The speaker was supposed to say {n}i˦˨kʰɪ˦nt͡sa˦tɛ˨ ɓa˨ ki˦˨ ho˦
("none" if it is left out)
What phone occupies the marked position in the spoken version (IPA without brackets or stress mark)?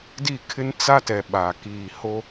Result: d